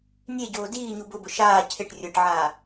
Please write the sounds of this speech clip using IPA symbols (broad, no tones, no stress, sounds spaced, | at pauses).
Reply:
nʲ e ɟ oː d iː ɲ u b ʊ b ʊ ʃ aː cʰ ɪ ʈ rʲ ʊ ʈ ʕ aː